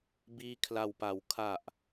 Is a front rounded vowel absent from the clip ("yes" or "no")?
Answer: yes